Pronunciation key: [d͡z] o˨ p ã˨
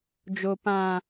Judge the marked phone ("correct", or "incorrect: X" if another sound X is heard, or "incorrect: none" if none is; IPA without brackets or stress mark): incorrect: d͡ʒ